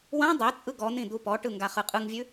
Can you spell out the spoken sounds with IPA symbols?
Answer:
wã dˤɛt͡sʼɯ ɡɔn̪ĩ d̪upɔʈɯ ŋɡaχɯqʼɯŋvʲʉ

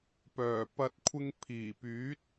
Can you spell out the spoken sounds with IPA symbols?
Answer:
pœː˨˩pɐ˧t̚ kʷʰɪ˧ŋpʰiː˨˩ pyː˨˥t̚

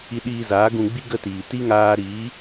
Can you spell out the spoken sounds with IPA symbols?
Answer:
i˧ɗiː˧zaː˨˦ ɡũ˧ ɡ͡bi˦ɡə˦˨tiː˨ti˦ ŋaː˧ɾiː˨˦

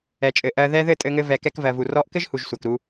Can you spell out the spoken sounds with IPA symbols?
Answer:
ɛ˨t͡ʃʼɘ˨ ʔɜ˨ðɛ˧ðɘ˦˨ tʼɘ˧ŋɘ˧ vɛ˨kɛ˧kvɜ˨ vu˨rɔ˧ʔkɘ˦ʒhu˨ʒ sʷɜ˨kɾu˧

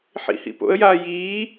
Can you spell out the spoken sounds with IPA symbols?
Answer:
ħḭhḭpo̰ə̯jaː jiː

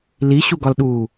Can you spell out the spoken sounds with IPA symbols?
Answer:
liɕuɡɒlɗuː

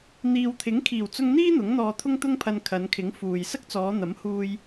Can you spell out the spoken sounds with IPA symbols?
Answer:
n̪iː˨wt̪ʰɪ˨˥ŋkʰiː˨˩w t͡sʊ˧ŋn̪iː˥ n̪ʊ˨˥ŋn̪ɔː˧ t̪ʰʊ˥ŋt̪ʊ˥ŋpʰɐ˧n kʰɐ˨˧nkʰɪ˨˥ŋfuː˨j sɐ˥k̚t͡sɔː˨˧n̪ɐ˨˥mhuː˧j

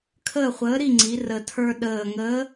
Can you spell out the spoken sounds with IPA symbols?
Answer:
kʰəː˦˨χʷəː˨˥ɾi˦˨ŋ͡ǀi˩˧ rə˨˩tʰə˞˦ ɗəː˨˩ŋəː˨˥

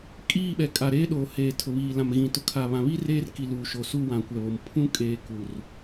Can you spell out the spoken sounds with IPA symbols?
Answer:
kʼiː˦˨ɓɛ˨kʼa˨ ɾeː˦ɗoː˨heː˨ tʰʊ˨βiː˨ lã˨mɣĩ˨tʊ˨˦ kʰa˨βã˨βiː˦ reː˦rki˨ luː˨ʃo˨su˦˨wã˨ kʷɛ˨βo˨m pʰũ˦kʼeː˨ ku˨r

